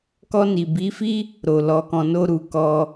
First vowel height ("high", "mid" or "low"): mid